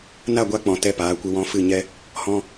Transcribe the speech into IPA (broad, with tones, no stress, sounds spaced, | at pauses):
n a˦˨ ɡʷ a˧ k͡p ɔ̃˨ t ɛ˧ p aː˨˦ kʷ ɨ˧ w ɔ̃˧ f ɨ˦˨ ɲ ɛ˦ | h ɔ̃˧